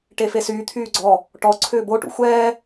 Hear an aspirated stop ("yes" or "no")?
yes